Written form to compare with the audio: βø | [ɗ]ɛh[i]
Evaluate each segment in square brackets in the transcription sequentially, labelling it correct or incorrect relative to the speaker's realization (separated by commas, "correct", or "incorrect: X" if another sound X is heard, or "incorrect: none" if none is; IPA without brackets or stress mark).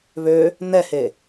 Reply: incorrect: n, incorrect: e